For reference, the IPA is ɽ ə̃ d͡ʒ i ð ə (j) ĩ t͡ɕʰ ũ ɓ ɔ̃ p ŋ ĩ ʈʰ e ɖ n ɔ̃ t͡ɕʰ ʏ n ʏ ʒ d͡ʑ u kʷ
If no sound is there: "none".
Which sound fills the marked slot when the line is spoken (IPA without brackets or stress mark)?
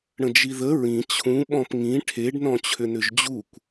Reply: ɹ